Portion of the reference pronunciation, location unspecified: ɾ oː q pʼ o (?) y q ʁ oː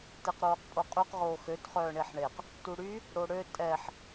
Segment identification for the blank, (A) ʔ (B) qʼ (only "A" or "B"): B